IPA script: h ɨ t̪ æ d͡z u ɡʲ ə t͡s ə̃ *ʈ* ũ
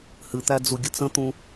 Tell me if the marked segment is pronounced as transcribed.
no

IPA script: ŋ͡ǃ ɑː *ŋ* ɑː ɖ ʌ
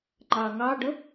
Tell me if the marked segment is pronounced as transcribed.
yes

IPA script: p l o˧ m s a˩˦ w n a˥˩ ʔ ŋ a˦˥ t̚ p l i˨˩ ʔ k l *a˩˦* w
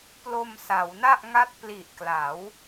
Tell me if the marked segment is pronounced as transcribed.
yes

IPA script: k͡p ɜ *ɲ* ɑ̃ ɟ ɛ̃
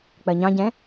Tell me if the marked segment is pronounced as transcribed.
yes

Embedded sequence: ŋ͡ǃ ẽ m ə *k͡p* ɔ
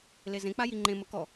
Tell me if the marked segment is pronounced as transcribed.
no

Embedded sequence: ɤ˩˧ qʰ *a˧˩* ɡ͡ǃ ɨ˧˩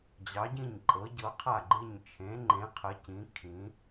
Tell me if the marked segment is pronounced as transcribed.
yes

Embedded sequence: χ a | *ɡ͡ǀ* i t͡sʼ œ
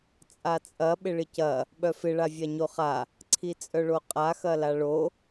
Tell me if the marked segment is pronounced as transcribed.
no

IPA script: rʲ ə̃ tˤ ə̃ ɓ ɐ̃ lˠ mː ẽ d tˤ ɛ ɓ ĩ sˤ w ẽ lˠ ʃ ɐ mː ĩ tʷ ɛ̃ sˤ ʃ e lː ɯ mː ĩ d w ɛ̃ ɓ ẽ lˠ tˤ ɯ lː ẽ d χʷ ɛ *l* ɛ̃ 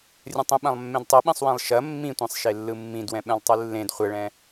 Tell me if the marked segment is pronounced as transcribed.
no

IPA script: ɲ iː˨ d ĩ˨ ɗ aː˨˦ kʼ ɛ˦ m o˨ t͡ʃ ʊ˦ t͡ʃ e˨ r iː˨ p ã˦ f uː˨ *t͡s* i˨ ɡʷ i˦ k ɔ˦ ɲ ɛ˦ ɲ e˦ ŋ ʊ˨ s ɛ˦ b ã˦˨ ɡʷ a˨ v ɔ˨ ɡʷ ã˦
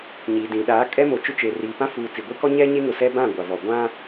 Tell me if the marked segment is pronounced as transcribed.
yes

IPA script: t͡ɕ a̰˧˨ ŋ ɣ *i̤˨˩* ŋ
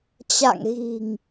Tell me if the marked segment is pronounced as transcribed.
yes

